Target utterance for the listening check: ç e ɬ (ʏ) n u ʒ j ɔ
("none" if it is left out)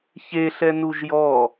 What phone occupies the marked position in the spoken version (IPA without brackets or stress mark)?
ɛ